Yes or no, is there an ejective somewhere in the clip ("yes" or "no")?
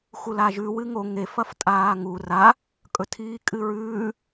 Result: yes